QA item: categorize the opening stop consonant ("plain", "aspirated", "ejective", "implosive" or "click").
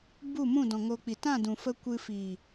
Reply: plain